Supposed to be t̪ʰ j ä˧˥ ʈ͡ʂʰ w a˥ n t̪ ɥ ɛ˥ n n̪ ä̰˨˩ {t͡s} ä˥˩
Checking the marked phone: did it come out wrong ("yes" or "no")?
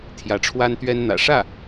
yes